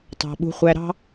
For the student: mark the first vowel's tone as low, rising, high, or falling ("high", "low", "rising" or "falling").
low